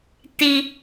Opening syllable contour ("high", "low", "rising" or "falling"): high